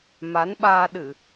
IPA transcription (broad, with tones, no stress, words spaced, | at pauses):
ma˨˦nɓaː˧ ɗɨ˧˩˨